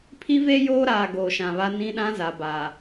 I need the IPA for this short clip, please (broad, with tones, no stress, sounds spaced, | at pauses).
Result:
pʰ i˦ v e˦ j oː˦ ɾ aː˨ ɡ oː˨ ʃ ã˨ β a˦ n ĩ˦ ɗ ã˦ z a˨ b a˨